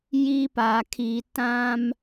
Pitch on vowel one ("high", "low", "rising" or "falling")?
high